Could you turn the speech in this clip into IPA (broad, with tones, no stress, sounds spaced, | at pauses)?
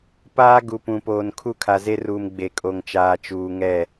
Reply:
p aː˦ ɡ u˨ p ũ˨ p oː˨ n kʰ u˦˨ kʰ a˨ z e˦ r uː˨ m ɡ͡b e˨ kʼ o˨ ŋ t͡ʃ aː˨ t͡ʃ uː˨ ŋ ɛ˦˨